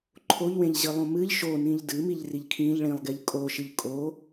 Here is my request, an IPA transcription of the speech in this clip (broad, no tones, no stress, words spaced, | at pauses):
ǃʰoʎwẽʎʑɨ lˠõmɨʎ ʃonĩʎ dɨ miʎriʎkʰĩʎ ɭĩlˠɡeʎ kʼoʃɨʎ kʼo